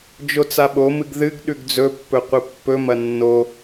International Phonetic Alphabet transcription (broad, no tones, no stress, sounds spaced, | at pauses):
d͡ʒ o t͡s a ɓ o m ɨ ɡ ð ɨ ɡ ɗ ʉ ɡ d͡z ɵ pː ɵ qʷ ɨ pː ɵ m ɐ nː o